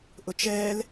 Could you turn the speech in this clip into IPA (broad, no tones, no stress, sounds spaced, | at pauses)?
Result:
ʔ ʊ t͡ʃ ɛː l